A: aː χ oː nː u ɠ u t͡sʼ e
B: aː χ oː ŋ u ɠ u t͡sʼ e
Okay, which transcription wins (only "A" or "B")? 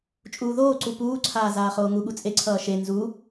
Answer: B